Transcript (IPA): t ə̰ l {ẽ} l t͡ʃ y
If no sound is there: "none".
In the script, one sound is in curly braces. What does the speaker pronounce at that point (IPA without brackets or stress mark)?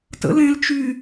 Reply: ẽ